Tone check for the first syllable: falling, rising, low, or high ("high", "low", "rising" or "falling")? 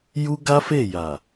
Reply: high